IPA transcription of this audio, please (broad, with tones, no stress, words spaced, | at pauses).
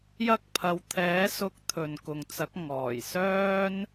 jɐ˥k̚pʰɐ˧w t̪ʰɛː˨˥ sʊ˧k̚ t̪ʰɵ˨nkʊ˨ŋt͡sɐ˨˥k̚ ŋɔː˨˩j sœː˥n